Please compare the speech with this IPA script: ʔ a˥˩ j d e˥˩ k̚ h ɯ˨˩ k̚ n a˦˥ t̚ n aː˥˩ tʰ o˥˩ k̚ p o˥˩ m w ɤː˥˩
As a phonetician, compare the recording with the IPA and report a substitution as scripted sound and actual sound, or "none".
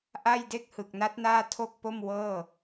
none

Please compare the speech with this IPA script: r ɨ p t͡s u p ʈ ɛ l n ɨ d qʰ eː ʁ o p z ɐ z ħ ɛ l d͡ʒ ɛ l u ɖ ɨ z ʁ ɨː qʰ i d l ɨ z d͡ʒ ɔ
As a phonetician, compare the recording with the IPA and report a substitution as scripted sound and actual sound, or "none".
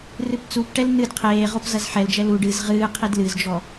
none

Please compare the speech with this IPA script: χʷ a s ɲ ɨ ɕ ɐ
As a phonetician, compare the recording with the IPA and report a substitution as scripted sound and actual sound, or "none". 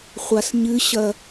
none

